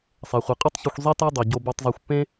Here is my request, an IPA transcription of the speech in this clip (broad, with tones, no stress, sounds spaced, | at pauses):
sˤ ɛ˩ χʷ i˩ qʼ u˥ tˤ ç o˧ xʷ zˤ i˥ t a˥ dˤ i˩ ɟ o˧ b ɤ˧ tˤ zˤ a˧ xʷ pː ẽ˥